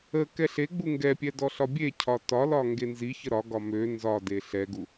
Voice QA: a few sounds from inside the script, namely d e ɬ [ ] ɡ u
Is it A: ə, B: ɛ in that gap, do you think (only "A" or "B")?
B